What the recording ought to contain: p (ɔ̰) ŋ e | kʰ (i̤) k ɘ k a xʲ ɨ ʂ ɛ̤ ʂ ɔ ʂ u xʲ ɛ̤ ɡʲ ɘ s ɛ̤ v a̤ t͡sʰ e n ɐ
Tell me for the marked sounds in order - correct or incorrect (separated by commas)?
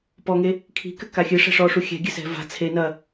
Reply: incorrect, correct